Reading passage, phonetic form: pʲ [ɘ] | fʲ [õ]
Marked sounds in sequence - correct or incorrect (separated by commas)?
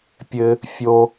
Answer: correct, incorrect